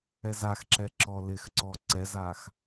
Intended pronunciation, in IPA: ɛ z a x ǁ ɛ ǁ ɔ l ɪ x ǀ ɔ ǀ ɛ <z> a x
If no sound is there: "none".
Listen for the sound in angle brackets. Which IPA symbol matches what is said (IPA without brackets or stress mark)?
z